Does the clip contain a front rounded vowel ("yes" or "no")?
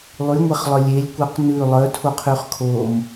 yes